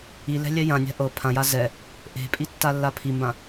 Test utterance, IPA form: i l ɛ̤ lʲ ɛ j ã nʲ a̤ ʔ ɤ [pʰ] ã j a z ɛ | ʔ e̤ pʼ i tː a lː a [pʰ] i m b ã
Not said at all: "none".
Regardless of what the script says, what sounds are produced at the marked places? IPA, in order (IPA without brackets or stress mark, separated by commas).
pʰ, pʰ